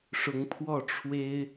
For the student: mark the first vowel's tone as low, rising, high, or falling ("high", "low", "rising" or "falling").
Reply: rising